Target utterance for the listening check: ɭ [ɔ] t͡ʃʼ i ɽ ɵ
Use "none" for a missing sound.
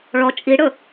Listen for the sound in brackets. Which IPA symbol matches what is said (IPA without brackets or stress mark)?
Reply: ɔ